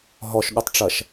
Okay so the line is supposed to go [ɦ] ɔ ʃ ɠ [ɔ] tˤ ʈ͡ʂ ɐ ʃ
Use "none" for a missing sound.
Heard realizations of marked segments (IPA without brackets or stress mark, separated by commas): ɦ, o